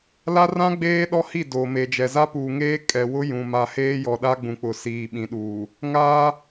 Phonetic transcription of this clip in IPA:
l a˦ r ã˦ ɡ͡b eː˦ ɗ ɔ˦ h i˦˨ d oː˨ m e˨ d͡ʒ ɛ˨ z a˦ p uː˨ ŋ eː˦ kʼ ɛ˨ w ʊ˦ j ũ˨ m a˨ h eː˦ j ɔ˨ ɗ a˦ ɡ͡b ũ˨ k͡p ʊ˨ s iː˨ ɓ ĩ˨ ɗ uː˨ | ŋ aː˦

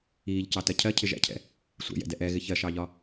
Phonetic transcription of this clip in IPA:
iː ʎ c ɑ t ɜ cʰ ɜ cʰ ɪ ʒ æ̰ cʰ ɛ̰ | sʷ ɛ̰ j ɛ̰ d ɛ ʔ ɛ ɣ ɪ ç ɜ ʃ ɑ ʎ ɒ

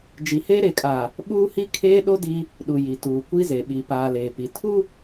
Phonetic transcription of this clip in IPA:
d͡ʒ i˨ h eː˦ ɾ e˨ kʼ aː˨ | ɓ uː˦ h i˦ kʰ eː˦ ɗ o˦ d i˦ | ɗ u˨ j i˨ t uː˨ kʷ i˦ z e˨ ɓ i˨ p aː˨ l eː˨ p i˨ tʰ u˦

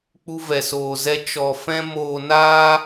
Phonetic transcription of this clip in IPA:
k͡p u˦ v ɛ˧ s oː˧ z ɛ˦ t͡ʃ ɔ˧ f ɛ̃˦ m oː˧ n aː˦

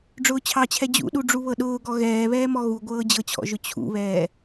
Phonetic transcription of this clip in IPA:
ɖ͡ʐ ʊː t͡ɕʰ ɑ t͡ɕʰ ɛ d͡ʑ ṵ ɗ u ɖ͡ʐ u β ɤ ɗ ʊː ɡ ɔ ɣ ɛː β ɛː m ɔ ɣ u ɡʷ ɤː d͡ʑ ɤ t͡ɕʰ ɔ̰ ʒ ʊ t͡ɕʰ ṵ β ɛː

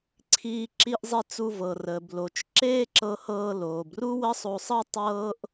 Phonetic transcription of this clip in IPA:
ǀʰ iː˧ ǁ i˧ ʔ zˤ i˧ t͡s u˧ v ɤ˩ r əː˩ b l o˩ t͡ʃ ǁ eː˥ ǁ ɤ˧ h ɤː˧ l oː˩ b r u˥ w ə˥ sˤ o˧ sˤ ɤ˥ tˤ ɤː˥ ʔ

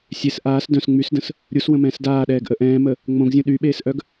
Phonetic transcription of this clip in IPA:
sʲ e s ʔ aː s d œ̃ s ŋ͡m y s d ə̃ s | ɾʲ u s w ə̃ m ɛ̃ː s d aː ɗ ɛː ɡ ʔ ə ʔ ɛ̃ː m ə | ŋ͡m õ ɡ zʲ ũ ɗ y ɓ eː s ʔ œ ɡ

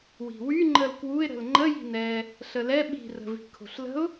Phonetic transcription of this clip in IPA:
w i̤ w y ŋ͡ǃ ə l k w u ɪ̯ ɾ ə̤ l ŋ͡ǃ ə j i̤ n ɛ | ɬ ə l ɛ ɓ i̤ r ə̤ v i̤ kʰ o̤ ɬ l ə̤ ʊ̯

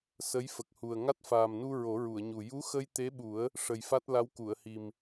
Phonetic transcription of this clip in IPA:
s ə˧˥ j f ə˨˩ k̚ h u˨˩ ə̯ ŋ a˦˥ t̚ f aː˨˩ m n u˧ ɹ o˨˩˦ ɹ u˨˩˨ ə̯ ɲ u˨˩ j u˧˥ x ə˧ j t̪ e˧˥ ɓ u˨˩˦ ə̯ | ʂ ə˨˩ j f a˦˥ t̚ l a˧˥ w k u˨˩˨ ə̯ h i˨˩ m

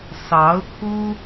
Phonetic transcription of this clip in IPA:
s ɑ˧˥ ʊ̯ kʰ u˥

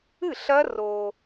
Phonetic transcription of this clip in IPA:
ɨ˥˨ ɬ ɐ˦˥ r o˧

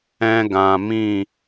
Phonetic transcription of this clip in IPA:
ɛ̃˧ ɡ ã˨ m ĩ˦˨

